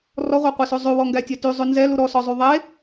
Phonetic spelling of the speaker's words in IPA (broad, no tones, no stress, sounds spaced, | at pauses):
r ɔ ʁʷ e qʷ e s ʉ zˤ ʉ w ɔ ŋ ɡ æ tʲ ɛ t y zˤ ʉ n z ɛ l u ɾ ɔ s ɔ zˤ y ðˤ e